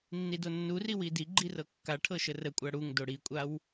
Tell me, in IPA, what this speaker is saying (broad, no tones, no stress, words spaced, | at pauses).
nːidonːuri widiɡ͡ǃi rɤkːaʈʰɤ ʃərəkʷʼa ɽuŋ doɽikʷʼaw